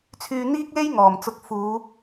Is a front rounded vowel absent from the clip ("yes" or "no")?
no